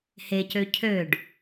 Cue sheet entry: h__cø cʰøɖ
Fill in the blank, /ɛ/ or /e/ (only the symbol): e